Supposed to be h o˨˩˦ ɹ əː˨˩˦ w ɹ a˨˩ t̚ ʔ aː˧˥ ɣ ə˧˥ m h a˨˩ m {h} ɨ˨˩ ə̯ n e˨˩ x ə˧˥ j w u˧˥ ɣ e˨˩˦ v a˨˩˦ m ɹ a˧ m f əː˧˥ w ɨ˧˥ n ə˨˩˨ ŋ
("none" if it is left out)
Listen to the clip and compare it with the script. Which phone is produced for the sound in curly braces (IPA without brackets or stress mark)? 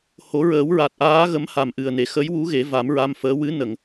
ʔ